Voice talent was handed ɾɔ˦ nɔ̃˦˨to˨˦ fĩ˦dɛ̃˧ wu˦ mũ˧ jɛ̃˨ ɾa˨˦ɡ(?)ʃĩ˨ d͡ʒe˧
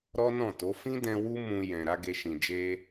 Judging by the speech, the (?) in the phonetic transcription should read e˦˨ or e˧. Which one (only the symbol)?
e˧